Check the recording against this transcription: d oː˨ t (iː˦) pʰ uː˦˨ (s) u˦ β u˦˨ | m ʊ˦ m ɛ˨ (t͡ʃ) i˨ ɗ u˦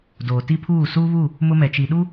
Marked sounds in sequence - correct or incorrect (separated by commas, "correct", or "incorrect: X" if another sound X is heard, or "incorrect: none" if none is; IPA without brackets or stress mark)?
incorrect: i˦, correct, correct